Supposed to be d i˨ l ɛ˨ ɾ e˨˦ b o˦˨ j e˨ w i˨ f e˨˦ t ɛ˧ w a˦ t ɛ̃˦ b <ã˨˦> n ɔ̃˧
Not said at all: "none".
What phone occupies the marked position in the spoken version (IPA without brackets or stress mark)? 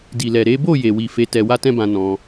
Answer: ã˧